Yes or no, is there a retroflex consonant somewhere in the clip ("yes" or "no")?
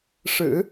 yes